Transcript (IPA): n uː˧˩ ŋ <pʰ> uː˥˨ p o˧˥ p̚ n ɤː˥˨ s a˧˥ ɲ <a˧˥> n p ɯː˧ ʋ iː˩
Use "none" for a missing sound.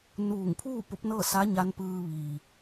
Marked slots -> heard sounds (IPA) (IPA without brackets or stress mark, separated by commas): pʰ, a˧˥